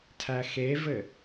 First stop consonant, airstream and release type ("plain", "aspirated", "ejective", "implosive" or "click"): aspirated